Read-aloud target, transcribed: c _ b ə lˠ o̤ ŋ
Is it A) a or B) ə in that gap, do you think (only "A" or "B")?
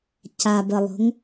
A